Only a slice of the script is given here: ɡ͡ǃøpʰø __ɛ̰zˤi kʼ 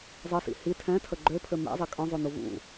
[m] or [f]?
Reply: m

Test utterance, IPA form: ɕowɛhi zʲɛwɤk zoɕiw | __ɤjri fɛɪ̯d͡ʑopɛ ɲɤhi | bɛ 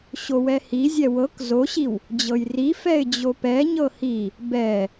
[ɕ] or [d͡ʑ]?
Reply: d͡ʑ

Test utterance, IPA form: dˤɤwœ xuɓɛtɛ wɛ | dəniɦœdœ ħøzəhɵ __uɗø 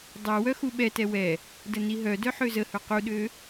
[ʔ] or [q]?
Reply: q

